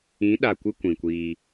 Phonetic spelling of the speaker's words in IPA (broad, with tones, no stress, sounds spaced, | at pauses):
ĩ˨˦ ɗ a˨ kʷ ɨ˧ kʷ ĩ˨ kʷ iː˧